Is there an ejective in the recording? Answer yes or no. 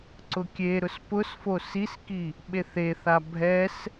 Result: no